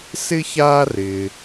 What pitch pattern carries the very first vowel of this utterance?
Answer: high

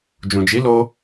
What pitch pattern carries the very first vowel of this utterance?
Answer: low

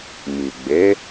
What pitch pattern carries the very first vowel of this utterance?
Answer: low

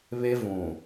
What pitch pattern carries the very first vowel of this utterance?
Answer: high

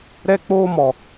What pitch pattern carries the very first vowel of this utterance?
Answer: high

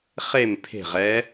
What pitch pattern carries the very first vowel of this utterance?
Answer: falling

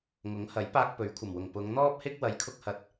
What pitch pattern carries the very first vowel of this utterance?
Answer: rising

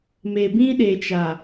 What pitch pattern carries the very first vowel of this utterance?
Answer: low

